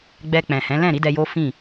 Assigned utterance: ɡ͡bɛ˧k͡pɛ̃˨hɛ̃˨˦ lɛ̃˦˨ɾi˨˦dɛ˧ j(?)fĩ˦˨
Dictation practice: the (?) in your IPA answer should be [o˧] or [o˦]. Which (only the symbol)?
o˦